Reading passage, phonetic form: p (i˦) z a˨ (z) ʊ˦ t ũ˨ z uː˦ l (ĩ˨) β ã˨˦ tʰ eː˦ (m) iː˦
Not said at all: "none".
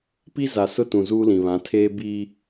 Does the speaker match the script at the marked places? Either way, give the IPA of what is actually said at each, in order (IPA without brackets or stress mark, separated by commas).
i˦, s, ĩ˨, b